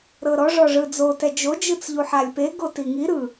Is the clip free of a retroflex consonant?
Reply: no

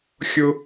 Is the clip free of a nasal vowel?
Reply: yes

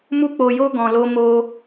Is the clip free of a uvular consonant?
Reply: yes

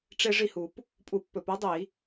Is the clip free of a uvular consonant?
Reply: yes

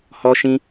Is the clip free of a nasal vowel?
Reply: no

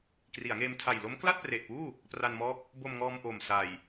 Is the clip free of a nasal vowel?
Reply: yes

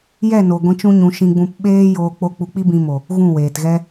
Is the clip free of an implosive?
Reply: no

